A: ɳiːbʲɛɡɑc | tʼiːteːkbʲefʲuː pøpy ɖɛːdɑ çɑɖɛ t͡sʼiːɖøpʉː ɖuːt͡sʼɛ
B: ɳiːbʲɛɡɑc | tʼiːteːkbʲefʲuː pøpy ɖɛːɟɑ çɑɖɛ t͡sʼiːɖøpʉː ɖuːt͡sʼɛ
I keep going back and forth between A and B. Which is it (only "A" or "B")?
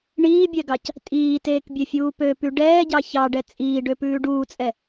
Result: B